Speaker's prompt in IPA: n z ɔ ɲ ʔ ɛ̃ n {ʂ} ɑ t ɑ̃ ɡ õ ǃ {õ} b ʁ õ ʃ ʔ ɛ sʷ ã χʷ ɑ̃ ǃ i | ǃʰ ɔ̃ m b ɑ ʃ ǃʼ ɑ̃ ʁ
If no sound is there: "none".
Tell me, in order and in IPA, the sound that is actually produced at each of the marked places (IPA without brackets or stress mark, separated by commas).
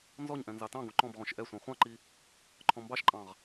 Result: z, ɔ̃